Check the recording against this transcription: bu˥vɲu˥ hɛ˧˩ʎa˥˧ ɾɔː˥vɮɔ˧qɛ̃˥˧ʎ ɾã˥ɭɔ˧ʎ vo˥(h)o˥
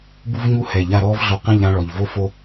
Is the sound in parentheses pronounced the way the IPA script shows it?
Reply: no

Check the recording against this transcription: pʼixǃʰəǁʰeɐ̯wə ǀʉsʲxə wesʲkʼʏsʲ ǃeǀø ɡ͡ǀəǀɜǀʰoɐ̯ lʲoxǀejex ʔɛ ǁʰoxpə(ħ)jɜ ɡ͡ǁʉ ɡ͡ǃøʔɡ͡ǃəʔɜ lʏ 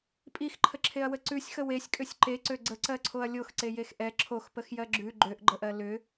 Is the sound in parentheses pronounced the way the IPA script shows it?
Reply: no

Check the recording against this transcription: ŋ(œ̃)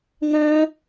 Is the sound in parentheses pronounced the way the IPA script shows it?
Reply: yes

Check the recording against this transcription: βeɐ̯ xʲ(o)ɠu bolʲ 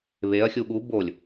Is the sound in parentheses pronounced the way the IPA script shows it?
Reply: no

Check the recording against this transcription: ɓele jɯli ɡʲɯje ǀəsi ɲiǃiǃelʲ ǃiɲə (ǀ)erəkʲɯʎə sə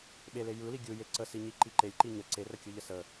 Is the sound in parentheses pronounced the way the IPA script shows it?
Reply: yes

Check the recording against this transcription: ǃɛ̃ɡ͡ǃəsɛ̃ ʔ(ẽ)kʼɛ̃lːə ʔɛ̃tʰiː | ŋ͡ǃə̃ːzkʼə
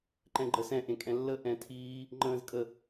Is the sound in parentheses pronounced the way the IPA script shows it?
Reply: yes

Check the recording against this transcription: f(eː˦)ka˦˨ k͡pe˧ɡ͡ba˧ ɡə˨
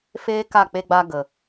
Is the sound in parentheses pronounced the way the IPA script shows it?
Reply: yes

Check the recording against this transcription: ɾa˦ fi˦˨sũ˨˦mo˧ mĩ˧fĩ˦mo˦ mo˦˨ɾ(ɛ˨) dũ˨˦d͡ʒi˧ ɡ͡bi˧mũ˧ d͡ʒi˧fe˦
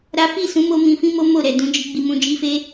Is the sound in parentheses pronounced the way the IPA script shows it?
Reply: yes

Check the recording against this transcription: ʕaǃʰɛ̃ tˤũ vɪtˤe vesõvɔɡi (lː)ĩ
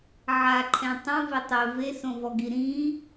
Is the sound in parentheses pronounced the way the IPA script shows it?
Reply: no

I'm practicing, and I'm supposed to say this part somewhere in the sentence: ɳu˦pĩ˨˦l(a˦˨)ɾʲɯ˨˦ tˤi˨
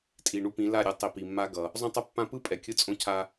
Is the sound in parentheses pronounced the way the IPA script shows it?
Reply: yes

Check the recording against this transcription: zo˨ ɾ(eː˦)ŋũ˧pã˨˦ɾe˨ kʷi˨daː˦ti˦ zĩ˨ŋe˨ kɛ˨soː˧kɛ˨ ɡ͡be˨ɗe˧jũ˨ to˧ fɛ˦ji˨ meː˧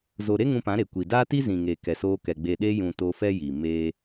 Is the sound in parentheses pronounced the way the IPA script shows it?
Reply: no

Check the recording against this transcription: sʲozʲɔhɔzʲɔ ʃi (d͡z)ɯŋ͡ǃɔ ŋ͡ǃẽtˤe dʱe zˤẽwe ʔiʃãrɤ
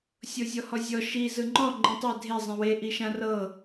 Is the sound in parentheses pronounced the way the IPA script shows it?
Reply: no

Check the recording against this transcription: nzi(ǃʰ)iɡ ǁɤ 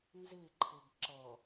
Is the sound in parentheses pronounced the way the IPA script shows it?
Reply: yes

